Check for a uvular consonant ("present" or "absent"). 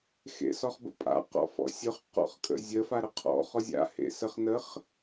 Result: present